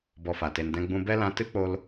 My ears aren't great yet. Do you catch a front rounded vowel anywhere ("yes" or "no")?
no